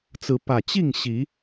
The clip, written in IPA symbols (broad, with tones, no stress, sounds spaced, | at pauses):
t͡s ɹ̩˨˦ p ä˨˩ t͡ɕ i˥˨ ŋ ɕ i˨˦